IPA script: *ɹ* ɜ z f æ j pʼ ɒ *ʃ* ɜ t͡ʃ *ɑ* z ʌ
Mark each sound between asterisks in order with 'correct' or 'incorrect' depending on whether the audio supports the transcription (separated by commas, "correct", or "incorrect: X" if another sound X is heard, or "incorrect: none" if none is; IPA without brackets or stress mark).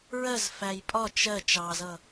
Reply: correct, incorrect: t͡ʃ, correct